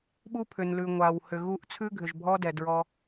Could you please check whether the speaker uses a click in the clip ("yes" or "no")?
no